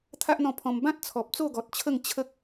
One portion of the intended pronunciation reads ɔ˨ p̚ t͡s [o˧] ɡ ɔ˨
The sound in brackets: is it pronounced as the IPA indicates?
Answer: no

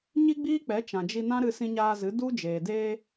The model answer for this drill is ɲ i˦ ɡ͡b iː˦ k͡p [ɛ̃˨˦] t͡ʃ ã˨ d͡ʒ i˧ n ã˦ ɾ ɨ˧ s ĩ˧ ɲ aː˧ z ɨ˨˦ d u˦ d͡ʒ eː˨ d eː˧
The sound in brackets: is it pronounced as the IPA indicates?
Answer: no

